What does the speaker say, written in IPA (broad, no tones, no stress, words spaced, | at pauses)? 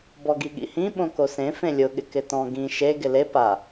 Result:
bɔɡiɠḭhĩ ɓõkosẽ fẽlʲʊ ɠɪkɪtɔ̃ ɡĩ ʃe ɡɪle pa